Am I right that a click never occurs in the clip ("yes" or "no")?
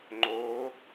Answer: no